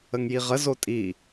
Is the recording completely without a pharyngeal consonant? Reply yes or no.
yes